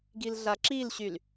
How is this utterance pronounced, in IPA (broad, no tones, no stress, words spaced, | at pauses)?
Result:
ɡilɮaǁilɕyl